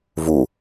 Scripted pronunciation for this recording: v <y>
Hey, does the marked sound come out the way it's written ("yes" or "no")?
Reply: no